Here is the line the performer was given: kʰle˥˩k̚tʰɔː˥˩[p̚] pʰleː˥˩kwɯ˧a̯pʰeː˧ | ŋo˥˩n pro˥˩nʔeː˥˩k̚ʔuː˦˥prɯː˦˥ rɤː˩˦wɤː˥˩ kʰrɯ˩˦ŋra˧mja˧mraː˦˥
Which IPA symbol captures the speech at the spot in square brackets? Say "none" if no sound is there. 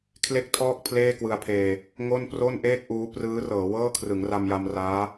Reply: k̚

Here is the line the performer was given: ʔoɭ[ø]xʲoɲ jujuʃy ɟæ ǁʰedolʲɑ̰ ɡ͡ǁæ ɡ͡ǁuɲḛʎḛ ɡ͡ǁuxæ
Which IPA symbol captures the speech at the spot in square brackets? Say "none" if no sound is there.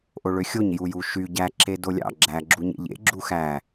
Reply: ø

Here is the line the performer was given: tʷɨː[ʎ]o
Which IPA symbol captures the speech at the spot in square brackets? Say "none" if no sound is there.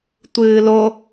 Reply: l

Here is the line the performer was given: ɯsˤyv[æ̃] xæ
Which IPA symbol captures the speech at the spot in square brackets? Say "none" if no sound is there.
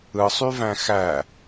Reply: æ̃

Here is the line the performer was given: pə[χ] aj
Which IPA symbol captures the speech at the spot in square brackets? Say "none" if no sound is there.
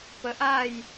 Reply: ʔ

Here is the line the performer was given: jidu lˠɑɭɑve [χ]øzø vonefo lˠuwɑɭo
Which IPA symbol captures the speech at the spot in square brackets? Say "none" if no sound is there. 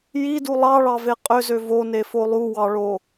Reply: qʼ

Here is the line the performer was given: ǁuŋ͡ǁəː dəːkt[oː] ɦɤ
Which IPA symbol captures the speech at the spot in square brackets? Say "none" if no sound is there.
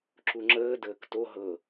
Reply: o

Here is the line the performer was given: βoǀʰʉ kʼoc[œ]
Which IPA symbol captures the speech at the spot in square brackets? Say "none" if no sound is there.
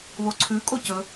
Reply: ɵ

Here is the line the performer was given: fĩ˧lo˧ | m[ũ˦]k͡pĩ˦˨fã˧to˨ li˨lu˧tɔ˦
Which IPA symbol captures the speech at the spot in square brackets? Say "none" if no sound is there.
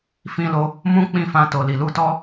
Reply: ũ˦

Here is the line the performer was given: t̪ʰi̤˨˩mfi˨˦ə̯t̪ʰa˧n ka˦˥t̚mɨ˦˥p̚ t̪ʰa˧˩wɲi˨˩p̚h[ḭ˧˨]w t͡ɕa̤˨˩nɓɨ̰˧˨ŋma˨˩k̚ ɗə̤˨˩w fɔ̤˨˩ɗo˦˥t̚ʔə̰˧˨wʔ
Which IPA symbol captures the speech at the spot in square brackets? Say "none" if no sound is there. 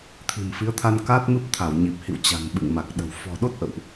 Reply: ḭ˧˨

